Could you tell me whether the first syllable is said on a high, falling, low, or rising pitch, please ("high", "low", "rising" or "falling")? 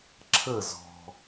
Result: falling